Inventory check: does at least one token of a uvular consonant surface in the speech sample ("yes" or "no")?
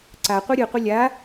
yes